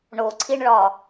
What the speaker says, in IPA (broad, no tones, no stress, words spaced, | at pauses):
ɳoǀʰiɳɭɒ